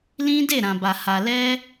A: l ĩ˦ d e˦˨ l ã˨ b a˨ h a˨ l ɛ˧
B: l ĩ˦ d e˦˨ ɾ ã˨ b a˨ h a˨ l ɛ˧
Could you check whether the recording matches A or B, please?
B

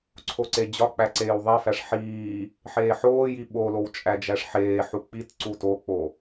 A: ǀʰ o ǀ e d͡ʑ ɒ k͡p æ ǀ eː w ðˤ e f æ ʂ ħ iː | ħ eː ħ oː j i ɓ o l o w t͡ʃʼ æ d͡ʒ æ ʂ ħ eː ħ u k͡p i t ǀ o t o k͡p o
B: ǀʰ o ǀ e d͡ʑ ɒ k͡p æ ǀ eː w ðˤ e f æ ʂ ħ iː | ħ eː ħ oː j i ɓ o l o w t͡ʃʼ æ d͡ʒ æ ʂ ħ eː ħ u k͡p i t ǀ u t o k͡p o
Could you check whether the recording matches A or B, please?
B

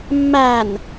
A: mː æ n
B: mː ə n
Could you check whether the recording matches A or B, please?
A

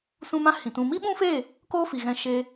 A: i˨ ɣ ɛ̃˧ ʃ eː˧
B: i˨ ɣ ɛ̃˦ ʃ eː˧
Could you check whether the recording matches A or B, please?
A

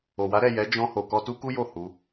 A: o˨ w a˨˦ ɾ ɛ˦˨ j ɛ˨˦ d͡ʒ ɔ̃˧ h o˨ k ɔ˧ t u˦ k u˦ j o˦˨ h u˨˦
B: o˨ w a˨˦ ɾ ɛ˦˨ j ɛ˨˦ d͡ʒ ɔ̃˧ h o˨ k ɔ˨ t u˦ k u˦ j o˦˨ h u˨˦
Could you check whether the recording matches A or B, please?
A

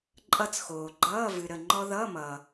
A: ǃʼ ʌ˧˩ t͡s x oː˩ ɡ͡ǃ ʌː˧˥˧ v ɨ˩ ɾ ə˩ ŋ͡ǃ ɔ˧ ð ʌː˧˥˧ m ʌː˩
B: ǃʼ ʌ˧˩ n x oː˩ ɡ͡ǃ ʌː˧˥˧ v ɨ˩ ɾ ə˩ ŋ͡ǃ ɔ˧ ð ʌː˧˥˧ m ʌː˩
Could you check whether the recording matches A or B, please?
A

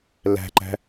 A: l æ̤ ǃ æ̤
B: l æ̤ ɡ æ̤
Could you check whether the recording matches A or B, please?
A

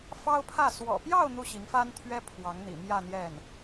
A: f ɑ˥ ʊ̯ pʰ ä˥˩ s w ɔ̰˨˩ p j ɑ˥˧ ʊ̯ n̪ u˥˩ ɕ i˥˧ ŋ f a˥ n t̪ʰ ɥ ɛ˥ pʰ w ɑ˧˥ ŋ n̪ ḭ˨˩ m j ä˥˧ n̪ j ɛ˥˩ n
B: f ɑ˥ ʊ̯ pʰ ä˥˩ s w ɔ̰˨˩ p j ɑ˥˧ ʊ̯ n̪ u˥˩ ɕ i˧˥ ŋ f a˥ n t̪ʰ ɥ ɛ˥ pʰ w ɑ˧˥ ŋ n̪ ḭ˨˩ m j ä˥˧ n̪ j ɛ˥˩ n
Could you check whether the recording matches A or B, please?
B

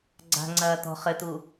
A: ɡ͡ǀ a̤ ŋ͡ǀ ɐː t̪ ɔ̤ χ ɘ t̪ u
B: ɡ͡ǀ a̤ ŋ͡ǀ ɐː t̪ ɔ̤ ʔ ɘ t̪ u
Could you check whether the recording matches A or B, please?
A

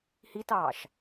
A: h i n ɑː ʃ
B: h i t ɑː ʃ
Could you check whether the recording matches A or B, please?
B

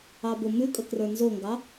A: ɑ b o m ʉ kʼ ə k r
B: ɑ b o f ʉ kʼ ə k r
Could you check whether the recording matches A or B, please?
A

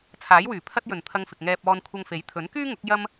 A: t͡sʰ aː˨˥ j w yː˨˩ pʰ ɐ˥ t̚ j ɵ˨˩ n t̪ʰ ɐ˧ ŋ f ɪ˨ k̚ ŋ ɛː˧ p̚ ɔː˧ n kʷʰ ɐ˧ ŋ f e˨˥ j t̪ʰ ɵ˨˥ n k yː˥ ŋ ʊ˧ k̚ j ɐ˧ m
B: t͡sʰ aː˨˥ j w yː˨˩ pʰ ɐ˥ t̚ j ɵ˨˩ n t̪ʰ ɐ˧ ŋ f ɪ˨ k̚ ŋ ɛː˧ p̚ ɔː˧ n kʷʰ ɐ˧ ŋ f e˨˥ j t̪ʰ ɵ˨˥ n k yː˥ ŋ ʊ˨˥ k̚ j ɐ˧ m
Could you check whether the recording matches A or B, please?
B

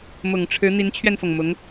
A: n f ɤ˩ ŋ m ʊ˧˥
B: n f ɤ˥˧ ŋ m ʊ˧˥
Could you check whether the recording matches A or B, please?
A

